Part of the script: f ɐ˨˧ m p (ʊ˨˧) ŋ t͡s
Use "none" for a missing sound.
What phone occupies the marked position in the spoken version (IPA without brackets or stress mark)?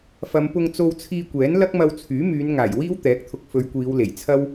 ʊ˧